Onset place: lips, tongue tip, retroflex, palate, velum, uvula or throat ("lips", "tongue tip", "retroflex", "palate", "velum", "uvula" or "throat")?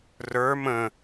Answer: tongue tip